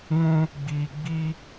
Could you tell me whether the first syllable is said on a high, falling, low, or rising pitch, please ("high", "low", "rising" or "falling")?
high